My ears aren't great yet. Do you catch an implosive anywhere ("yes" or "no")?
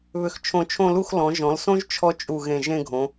no